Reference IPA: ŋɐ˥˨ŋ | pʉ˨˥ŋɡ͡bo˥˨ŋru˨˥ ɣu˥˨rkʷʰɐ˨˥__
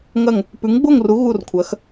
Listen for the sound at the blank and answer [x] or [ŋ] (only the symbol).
x